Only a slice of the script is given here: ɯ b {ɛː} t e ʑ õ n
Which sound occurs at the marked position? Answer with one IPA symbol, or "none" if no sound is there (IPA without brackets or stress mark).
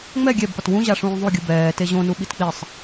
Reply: ɛː